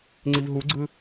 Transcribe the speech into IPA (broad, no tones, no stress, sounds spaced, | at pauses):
ŋ͡ǀ i v ɦ u ɡ͡ǀ ɯ